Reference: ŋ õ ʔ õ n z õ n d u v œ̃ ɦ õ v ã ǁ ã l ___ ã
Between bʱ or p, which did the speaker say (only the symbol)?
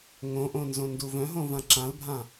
bʱ